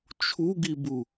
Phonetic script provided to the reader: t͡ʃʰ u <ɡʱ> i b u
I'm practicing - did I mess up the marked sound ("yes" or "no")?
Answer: yes